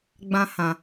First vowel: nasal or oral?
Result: nasal